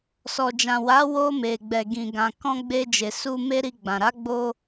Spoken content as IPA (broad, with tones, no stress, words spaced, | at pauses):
sɔ˨d͡ʒã˨ wa˨˦ wo˧ me˨ɡ͡bɛ˨ɡĩ˨ ɡã˨ kɔ̃˧ ɡ͡be˧d͡ʒe˨su˧ me˦ɾi˧ɡ͡bã˨ ɾa˨˦ɡ͡bo˧